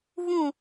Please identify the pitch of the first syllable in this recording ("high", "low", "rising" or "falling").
falling